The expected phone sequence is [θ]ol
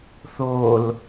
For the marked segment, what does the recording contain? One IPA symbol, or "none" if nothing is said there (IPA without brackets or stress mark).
θ